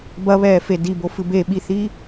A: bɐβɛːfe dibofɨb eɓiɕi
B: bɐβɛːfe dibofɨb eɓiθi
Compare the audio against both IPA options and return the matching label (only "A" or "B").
B